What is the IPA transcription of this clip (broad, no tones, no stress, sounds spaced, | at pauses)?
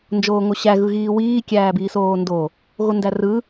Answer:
n d͡ʒ oː ŋ o ɕ æ ɣ ɯ ɣ iː w iː kʲ æː b iː s oː n d o | ɣ o n d æ r ɯ